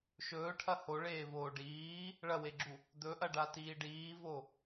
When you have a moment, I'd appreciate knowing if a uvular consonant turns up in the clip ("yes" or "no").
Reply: no